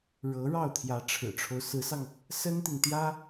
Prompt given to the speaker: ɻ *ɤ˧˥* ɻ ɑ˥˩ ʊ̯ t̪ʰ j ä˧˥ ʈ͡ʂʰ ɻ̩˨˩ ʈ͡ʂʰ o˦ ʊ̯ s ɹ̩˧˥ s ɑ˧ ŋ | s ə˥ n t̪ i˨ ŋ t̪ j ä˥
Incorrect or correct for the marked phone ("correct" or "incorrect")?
correct